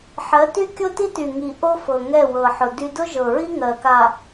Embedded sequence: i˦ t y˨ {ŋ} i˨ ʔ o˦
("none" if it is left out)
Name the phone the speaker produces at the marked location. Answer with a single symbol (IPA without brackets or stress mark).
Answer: ŋ